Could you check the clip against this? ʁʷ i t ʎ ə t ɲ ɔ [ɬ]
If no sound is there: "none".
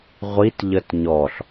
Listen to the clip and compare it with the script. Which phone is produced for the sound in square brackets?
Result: ɬ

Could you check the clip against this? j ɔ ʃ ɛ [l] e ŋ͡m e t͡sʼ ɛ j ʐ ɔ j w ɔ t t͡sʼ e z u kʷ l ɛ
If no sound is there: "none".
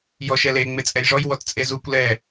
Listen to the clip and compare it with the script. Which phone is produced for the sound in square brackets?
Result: l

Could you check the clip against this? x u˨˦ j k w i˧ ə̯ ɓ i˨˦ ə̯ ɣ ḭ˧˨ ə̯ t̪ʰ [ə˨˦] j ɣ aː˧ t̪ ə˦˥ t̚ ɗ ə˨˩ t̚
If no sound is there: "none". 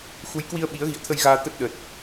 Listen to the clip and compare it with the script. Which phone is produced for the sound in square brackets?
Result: ə˧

